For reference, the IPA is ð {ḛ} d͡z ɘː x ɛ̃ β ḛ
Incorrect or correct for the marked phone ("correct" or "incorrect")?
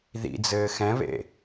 incorrect